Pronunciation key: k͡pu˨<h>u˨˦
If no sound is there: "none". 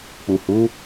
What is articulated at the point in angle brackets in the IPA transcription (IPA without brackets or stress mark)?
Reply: h